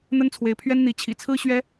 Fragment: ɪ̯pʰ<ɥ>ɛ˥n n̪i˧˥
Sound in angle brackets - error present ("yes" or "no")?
no